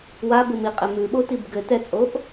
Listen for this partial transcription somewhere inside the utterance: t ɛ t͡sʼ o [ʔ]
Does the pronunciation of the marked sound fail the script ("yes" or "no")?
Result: no